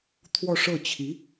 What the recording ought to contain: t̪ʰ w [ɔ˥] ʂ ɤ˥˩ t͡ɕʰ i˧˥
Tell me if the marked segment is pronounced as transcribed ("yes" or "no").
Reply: no